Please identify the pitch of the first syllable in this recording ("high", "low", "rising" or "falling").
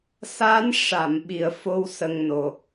rising